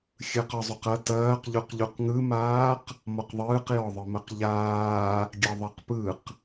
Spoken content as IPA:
xʲ ɯ q ɒ zˤ u q ɐ t ɐː q ʎ u q ʎ u q ŋ ɯ m aː q | m ɔ q ðˤ ɯː q j ɔ ðˤ ɯ m ɐ q ʎ aː | ɡʲ ɐ ðˤ ɐ q p ɯ q

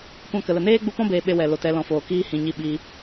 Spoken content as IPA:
kʷ ã˦ k ə˨ l ə˨ n eː˦ ɡ͡b u˧ p ɔ̃˦ b eː˧ ɓ e˦ w ɛ˨ l o˨ t ɛ˨˦ l ɔ̃˨ f oː˨ k iː˦ h ĩ˨ ɲ i˧ ɓ i˧

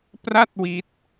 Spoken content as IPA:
p r a˥˩ t̚ w i˦˥ t̚

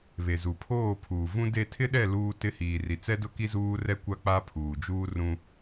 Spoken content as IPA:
β e˨ z u˨ pʰ oː˦˨ pʰ uː˨ v ũ˦ d e˦˨ tʰ ɪ˦ ɗ ɛ˦˨ l uː˦ t ɪ˦ h iː˨ r i˨ t͡s ɛ˦ d ʊ˦ k i˦ z uː˦ r ɛ˦ kʷ a˦ k͡p a˦ pʰ uː˨ d͡ʒ uː˦ r ũ˦

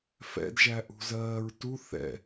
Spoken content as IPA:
f ɛ̰ d ʒ æ ʔ ṳ z ɜː ɹ t u θ ɛ̰

